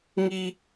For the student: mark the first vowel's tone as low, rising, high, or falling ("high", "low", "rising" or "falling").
high